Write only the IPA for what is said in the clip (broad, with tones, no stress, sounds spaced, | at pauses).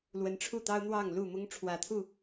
l w ə˨˦ n ʈ͡ʂʰ u˥˨ t̪ ɑ˦ ʊ̯ n̪ w ɑ˥˨ ŋ l u˥˨ m ʊ˦ ŋ ʈ͡ʂʰ w ä˨˩ t̪ʰ u˥˨